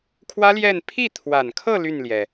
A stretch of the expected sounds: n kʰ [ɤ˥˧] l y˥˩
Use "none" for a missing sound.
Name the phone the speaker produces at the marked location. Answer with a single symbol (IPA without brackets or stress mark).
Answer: ɤ˥˧